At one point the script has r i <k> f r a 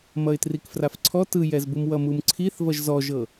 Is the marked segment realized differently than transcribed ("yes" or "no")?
no